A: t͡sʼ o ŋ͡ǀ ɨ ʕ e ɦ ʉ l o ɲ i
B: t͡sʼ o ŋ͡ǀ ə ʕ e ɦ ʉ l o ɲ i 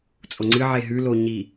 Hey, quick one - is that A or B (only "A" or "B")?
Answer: A